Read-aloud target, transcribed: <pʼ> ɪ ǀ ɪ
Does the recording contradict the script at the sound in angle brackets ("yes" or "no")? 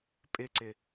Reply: no